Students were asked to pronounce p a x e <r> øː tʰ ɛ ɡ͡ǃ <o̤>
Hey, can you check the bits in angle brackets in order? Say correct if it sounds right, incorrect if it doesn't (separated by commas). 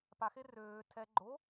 correct, incorrect